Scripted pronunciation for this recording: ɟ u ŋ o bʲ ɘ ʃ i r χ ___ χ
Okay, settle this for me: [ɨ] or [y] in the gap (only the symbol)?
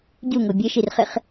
ɨ